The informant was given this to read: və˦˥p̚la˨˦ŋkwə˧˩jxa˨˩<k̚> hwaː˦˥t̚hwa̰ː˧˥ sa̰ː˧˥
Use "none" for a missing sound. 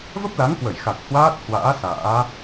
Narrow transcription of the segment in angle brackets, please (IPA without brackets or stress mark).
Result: k̚